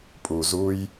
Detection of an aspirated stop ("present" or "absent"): absent